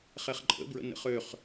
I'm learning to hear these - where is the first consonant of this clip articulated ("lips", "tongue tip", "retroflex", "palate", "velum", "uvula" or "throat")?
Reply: uvula